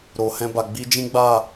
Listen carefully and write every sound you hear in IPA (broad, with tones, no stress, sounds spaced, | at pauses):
ɾ o˨ h ɛ̃˧ b a˨ ɡ͡b i˧ d͡ʒ ĩ˦ ɡ͡b a˦˨